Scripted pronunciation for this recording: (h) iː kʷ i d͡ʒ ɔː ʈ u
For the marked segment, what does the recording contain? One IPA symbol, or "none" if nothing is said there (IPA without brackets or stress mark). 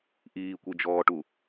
ʔ